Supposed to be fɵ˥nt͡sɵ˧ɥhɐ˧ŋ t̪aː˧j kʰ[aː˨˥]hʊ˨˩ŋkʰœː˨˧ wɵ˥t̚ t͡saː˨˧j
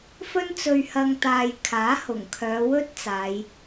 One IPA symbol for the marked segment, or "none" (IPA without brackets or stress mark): aː˨˥